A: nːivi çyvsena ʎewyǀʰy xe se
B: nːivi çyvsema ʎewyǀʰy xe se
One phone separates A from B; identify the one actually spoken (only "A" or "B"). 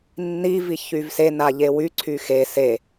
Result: A